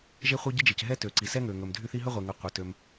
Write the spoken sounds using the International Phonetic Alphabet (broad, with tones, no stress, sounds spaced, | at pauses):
ʒ e˥ χʷ ɤ˥ ɟ i˥ d͡ʒ e˩ c ɦ ɛ˥ t ø˩ ǀ i˩ s ɛ˥ ŋ ø˩ ŋ ɵ˩ m dʱ y˥ θ i˥ ɦ ɵ˥ ʁʷ e˩ ŋ ɤ˩ qʷ ɤ˩ t ø˩ m